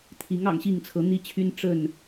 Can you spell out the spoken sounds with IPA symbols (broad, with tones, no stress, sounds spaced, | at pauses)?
t̪ʰ i˨˦ ŋ ɑ̰˨˩ ŋ ɕ i˥˨ ŋ t͡sʰ ɤ˨˦ n̪ i˦ t͡ɕʰ y˦ n ʈ͡ʂ ə˥˨ n